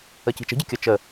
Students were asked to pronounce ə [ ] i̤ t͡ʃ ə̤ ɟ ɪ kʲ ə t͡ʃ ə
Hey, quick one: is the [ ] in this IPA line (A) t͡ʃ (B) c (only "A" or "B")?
B